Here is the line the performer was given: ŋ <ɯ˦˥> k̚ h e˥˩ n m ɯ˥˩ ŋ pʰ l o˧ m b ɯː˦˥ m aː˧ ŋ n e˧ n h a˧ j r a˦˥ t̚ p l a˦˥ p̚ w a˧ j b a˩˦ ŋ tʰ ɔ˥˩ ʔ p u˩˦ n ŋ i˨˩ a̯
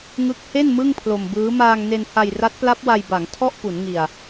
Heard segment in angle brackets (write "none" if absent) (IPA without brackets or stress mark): ɯ˦˥